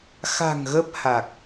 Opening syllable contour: low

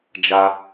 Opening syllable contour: high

